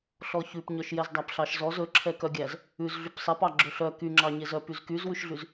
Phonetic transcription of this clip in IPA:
ɬ ɔ ç ʉ p ɲ œ ʃ j ɛ z dˤ æ p ɬ ɑ ʃ z ɔ z ɵ ǁʰ ɛ k œ ɡʲ æ z | ʉ z ɮ y p sˤ ɛ p ɑ ɡ͡ǁ ɵ ɬ œ k y ŋ͡ǁ ɑ ɲ e z œ p y z k y z w ʉ ʃ ɮ y z

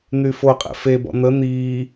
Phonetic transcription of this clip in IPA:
n̪ y f o qʼ ḛ f e b ɔ̰ n̪ ə n̪ iː

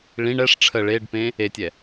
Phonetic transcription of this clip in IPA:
ɭ ĩ ɳ ɛ ʂ ʈ͡ʂʰ ə ɭ e ɖ p ẽ | e tʲ ɛ

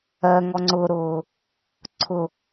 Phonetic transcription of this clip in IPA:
ɜ ŋ ɔ ŋ͡ǀ ʊː ɾ ʊː | ǀʰ ʊ

